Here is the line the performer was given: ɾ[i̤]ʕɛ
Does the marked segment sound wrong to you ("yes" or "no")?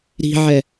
no